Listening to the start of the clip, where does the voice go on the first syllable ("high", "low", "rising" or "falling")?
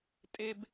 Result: high